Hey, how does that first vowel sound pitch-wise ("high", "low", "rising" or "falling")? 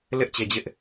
high